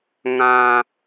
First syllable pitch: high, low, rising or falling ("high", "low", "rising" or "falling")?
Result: high